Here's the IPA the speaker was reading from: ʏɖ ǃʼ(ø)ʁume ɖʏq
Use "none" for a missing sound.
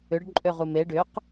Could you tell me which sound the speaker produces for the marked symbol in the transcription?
ø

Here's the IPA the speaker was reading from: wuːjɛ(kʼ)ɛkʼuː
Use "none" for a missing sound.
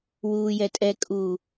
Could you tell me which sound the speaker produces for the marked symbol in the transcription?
tʼ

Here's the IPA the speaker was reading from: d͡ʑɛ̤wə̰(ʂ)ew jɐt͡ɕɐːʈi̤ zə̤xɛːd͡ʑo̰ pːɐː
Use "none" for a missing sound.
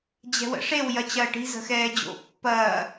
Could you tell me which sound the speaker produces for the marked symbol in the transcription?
ʂ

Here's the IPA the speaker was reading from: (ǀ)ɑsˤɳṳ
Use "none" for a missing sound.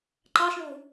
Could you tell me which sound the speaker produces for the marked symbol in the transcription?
ǃ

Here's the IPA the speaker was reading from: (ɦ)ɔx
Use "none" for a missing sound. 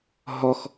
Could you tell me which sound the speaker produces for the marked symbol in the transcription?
ɦ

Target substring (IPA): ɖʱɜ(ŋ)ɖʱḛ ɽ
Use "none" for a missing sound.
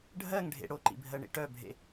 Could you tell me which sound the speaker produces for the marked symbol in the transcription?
ŋ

